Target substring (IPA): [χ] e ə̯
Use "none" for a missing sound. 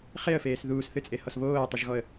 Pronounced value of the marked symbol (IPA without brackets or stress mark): χ